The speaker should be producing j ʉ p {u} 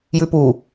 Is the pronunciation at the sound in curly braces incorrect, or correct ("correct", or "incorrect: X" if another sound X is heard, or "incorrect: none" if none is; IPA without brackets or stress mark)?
correct